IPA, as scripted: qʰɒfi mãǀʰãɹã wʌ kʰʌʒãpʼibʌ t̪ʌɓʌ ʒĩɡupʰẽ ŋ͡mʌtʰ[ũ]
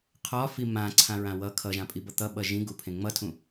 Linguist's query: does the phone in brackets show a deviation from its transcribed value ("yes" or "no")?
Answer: no